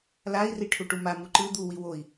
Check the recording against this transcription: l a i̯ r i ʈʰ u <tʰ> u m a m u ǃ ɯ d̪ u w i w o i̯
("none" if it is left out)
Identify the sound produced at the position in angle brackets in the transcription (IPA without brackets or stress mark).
ʈ